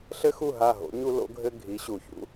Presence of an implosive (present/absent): absent